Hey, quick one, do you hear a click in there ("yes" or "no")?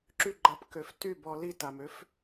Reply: yes